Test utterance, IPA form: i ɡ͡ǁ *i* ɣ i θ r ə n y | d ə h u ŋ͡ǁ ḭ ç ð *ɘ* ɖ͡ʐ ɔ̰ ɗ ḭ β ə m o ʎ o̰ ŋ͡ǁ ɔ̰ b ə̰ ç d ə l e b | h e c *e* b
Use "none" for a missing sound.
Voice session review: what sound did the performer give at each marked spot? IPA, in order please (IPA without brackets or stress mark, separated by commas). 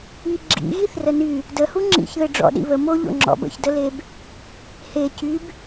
ḭ, ɘ, y